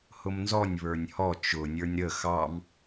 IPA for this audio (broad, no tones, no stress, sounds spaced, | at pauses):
h ʊ m n z ɔ nʲ β ə˞ nʲ h ɔ t͡ʃ ʊ nʲ ə˞ nʲ ɾ ə x ɑ m